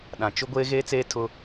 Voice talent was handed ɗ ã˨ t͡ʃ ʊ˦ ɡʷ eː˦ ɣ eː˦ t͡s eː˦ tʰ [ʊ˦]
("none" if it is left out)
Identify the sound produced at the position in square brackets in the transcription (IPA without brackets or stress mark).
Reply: ʊ˦